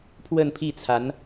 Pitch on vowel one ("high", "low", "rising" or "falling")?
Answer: falling